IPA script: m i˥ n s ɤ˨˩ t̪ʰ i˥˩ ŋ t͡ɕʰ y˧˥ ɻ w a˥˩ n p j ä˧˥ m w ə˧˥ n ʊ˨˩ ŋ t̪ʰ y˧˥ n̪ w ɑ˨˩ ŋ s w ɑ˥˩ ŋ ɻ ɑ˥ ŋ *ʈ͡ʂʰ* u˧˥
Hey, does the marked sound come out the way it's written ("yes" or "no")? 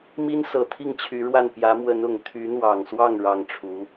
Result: yes